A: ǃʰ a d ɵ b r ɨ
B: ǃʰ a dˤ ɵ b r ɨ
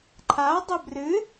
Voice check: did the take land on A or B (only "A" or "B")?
B